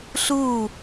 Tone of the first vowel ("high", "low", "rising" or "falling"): falling